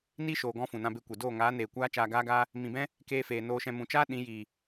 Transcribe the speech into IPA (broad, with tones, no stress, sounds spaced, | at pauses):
n i˦ ʃ oː˨ ɡ ɔ̃˧ f ũ˨ n ã˧ b e˧ kʷ e˨ d oː˦˨ ŋ aː˨˦ n eː˨ kʷ aː˦ t͡ʃ aː˧ ɡ aː˦ ɡ aː˦ | m ĩ˨ b ɛ̃˦ | k eː˧ f eː˨ n oː˧ ʃ ɛ̃˧ m ũ˨ t͡ʃ aː˦ ɗ ĩ˨˦ j iː˨